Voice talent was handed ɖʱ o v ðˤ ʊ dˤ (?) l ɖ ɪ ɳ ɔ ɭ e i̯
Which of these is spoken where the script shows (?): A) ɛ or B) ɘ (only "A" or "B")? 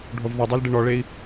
A